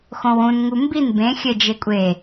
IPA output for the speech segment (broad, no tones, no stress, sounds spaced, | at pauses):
x õ w ũ n ŋ u m b i n b ẽ xʲ ɘ d͡ʒ e kʷʼ e